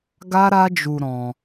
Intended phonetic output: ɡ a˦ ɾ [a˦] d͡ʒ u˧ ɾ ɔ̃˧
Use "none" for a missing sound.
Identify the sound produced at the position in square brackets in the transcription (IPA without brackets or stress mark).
a˦